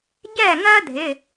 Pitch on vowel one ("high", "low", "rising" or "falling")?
falling